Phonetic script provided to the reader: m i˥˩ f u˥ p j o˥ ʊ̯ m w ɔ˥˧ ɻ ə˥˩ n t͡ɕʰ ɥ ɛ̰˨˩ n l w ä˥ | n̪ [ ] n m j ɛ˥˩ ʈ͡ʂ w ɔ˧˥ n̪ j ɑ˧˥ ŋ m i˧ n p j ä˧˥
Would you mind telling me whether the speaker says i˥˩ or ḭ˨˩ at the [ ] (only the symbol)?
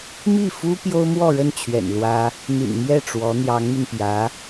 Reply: ḭ˨˩